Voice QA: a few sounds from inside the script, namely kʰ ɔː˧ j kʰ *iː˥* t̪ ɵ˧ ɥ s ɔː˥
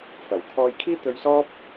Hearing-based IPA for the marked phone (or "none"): iː˥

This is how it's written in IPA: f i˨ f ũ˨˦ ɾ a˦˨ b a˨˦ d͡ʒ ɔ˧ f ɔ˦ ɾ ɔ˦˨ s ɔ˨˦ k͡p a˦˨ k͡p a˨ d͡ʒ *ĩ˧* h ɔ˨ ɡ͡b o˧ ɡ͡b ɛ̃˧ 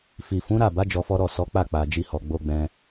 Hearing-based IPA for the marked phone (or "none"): i˧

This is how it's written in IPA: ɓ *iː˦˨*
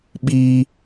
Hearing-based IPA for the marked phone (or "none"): iː˦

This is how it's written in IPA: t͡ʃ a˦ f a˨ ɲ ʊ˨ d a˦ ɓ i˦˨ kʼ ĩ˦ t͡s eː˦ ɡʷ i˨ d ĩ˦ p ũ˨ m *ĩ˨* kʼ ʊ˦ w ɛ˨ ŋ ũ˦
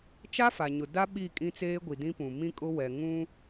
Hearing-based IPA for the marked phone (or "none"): ĩ˦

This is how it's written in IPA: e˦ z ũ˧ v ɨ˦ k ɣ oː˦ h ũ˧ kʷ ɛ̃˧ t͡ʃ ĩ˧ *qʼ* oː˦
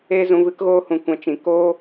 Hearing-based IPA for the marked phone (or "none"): k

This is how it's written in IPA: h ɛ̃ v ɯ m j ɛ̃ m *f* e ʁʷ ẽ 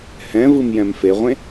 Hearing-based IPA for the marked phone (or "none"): f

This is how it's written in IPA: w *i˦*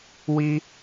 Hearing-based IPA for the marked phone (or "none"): i˦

